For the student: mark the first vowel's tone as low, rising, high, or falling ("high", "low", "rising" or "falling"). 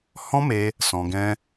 high